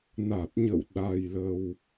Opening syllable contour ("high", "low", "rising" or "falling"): low